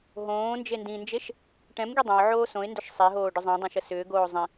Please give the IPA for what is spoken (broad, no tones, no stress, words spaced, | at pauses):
ɦõː nd͡ʒendĩnd͡ʒeʃ | ʈɛ̃mɡi dˤɛ̃ʊ̯ ʕoːsõɪ̯ndʏʃ sˤeɦoː ɖʏzˤɛ̃dˤẽʃ əsʏːɡoː zˤĩ